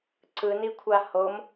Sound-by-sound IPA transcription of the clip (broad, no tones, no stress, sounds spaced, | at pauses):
ǀ ɯ n i kʷʰ a h o m